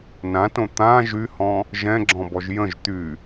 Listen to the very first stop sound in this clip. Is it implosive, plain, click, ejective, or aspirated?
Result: plain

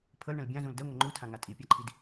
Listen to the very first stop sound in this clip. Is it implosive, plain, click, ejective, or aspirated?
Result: aspirated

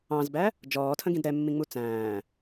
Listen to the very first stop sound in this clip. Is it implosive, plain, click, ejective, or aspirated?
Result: plain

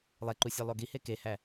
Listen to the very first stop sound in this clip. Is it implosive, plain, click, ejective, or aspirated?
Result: click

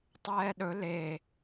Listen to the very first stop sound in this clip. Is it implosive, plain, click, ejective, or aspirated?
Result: plain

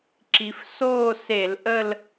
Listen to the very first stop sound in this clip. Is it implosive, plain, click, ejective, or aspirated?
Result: click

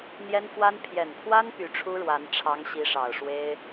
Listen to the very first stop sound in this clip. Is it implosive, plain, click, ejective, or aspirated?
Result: aspirated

